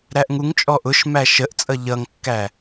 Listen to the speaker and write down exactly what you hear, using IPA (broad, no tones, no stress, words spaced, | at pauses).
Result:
ɾæʔŋuŋt͡ʃʼɔ ʔʊʃmæ ʃəʔt͡sʼʌ ʎʌŋkːæ